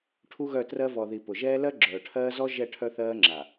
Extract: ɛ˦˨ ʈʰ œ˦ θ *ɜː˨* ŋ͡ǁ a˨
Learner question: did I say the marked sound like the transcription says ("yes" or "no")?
no